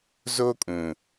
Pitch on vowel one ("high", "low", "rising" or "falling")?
high